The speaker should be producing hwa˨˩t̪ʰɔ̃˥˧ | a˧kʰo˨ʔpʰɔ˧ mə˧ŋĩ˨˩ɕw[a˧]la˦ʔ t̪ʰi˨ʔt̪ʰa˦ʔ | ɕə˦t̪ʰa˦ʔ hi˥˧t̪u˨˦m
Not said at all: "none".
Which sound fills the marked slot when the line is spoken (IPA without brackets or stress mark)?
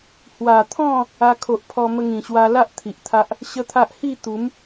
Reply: a˧